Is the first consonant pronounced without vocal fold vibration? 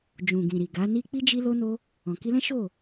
no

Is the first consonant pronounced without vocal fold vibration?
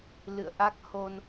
no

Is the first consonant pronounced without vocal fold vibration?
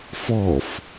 yes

